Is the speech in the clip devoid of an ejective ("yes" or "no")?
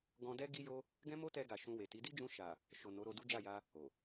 yes